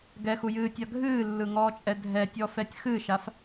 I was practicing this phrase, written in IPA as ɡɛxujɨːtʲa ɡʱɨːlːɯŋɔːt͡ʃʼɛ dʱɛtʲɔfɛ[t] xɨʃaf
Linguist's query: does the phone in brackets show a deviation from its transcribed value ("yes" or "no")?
yes